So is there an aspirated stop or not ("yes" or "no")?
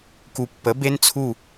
yes